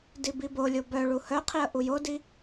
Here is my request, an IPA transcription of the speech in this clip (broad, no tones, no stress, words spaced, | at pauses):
dibibolʲo bœɭu hœqʰiə̯ ʔujodi